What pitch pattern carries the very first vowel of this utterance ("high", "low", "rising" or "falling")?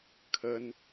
high